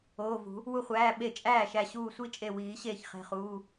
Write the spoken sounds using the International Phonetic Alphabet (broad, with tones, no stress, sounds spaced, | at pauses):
oː˩˧˩ v ṳ˨˩˦ | w u˧˩ χʷ æː˩˧˩ ɓ e˧˩ t͡ʃʼ æː˥˩ ʃ æ˧˩ ɕ uː˧˩ sʷ i˥˩ t͡ʃʼ e˧˩ w iː˨˩˦ ɕ eː˧˩ ç χ e̤˩˧˩ χ uː˩˧˩